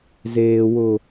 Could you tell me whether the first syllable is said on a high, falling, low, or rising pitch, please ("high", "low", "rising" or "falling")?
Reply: low